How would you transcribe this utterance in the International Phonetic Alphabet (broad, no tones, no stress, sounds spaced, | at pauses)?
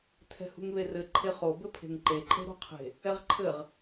tʰ ɛ̤ h ṳ ŋ β e r ɘ ǃʰ e χ o b ɘ pʰ e̤ ŋ ǃ e ǃʼ e̤ ɾ o̤ qʰ e̤ | ɛ ʁ ǃʰ ɘ ʁ